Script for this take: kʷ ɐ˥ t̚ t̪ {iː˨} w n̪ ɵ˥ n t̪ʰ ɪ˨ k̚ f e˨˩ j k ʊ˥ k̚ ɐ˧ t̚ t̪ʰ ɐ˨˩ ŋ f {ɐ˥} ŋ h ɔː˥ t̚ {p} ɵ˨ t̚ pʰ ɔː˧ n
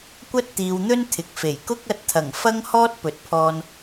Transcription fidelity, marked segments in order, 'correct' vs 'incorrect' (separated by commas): correct, correct, correct